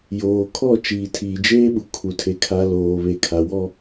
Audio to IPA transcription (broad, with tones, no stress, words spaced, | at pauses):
joː˨kʰɔ˦˨ t͡ʃiː˨tʰiː˨d͡ʒeː˦ɓu˨ kʰu˨tʰe˨ kʰa˨ loː˨βe˨kʰa˨ wɔ˦